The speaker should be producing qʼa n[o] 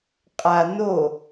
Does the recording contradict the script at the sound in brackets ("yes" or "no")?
no